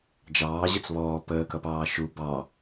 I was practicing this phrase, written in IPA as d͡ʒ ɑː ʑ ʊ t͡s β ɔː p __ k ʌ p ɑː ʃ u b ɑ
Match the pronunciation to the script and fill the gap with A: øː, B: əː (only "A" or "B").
B